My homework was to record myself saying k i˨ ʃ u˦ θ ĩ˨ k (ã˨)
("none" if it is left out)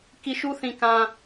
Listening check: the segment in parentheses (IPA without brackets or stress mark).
ã˨